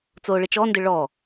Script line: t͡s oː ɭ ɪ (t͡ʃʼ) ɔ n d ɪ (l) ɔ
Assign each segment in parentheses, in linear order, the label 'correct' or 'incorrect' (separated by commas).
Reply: incorrect, incorrect